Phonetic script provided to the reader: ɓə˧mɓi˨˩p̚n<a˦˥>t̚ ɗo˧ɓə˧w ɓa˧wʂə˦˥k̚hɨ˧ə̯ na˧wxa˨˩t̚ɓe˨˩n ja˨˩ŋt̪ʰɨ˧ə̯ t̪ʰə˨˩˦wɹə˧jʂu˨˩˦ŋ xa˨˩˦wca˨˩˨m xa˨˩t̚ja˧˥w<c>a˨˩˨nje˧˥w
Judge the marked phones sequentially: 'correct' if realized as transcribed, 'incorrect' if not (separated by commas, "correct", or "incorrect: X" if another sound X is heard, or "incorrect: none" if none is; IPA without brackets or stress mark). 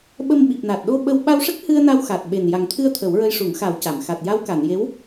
incorrect: a˨˩, incorrect: k